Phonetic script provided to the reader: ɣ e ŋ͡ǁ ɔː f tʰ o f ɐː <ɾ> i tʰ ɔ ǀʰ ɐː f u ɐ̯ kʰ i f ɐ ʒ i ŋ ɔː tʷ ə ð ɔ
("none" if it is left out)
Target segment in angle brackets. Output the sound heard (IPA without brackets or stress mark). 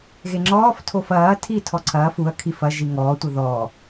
tʰ